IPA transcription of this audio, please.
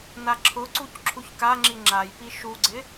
naǁʰʊǀuc ǁʰuçkaŋ͡ǁi ŋ͡ǁajpi ʃuɡ͡ǀɪ

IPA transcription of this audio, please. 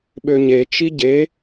ɓøɲe t͡ʃiɟe

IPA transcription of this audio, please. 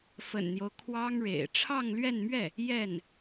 fə̰˨˩nn̪jo˦ʊ̯ kʰwɑ˥ŋɻḛ˨˩ɪ̯ ʈ͡ʂʰɑ˥˧ŋlɥɛ˥˧nmɥɛ˥˩ | jɛ˥˩n

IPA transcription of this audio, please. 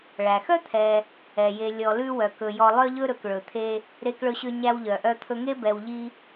ɭæ˩xœ˥t̪ʰɛ˨ | ɛ˩je˨ lʲɔ˨lʉ˦wœ˩ kɵ˩jɔ˨lˠœ˦ʎɵ˦ ɾɵ˩kɭɵ˩t̪ʰe˦ | ɾe˦kɭɵ˦ɕø˦ ɲæ˦wʎœ˩ʔœ˦t̪ʰɵ˦ ŋe˥bɛ˨wʎi˦

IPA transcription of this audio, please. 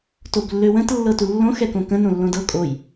toblːøwə̃t lːɤtulːõ xɛkõkə̃ nõlːõdɤ kʼoj

